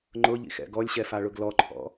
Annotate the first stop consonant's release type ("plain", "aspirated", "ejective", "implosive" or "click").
click